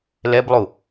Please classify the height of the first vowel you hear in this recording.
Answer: mid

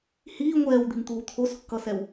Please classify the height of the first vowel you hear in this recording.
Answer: high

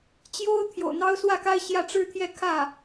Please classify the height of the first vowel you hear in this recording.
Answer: mid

